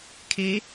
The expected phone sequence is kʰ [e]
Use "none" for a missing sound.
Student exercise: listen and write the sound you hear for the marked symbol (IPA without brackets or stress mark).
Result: e